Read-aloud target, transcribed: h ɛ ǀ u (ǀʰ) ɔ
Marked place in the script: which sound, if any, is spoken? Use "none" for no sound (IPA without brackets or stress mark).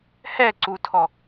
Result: tʰ